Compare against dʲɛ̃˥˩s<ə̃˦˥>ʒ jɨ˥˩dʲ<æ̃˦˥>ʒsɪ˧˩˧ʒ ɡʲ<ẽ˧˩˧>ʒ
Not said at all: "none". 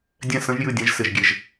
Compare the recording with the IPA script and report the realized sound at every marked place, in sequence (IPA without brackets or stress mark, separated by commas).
ə̃˦˥, ɛ̃˦˥, e˧˩˧